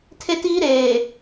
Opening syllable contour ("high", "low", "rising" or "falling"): high